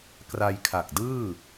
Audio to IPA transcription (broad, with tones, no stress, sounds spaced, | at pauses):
k r a˧ j kʰ a˨˩ k̚ d ɯː˥˩